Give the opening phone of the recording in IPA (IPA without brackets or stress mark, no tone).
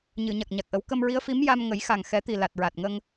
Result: ɲ